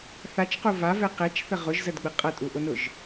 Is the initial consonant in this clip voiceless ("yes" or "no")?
yes